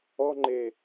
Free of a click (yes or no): no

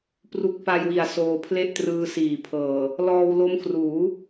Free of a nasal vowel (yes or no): yes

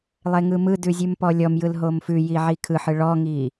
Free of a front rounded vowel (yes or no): yes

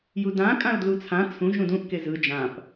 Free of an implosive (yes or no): yes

